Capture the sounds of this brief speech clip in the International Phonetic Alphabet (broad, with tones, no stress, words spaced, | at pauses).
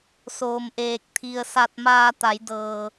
soː˧mʔeː˧k̚t̪ʰi˧ə̯ sa˧t̚maː˧t̪a˩˧j dɤː˧